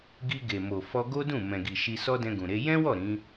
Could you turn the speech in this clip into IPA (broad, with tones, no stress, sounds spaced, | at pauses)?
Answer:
ɡ i˧ ɡ e˨ m o˨ f ɔ˧ ɡ o˦ d ũ˦˨ m ɛ̃˨ ɡ i˨ ʃ i˧ s ɔ˦ d ɛ̃˧ ɡ ũ˨ ɾ e˨˦ j ɛ̃˦ w ɔ˦˨ ɾ ĩ˨˦